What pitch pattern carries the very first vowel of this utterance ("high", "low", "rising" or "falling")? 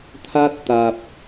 high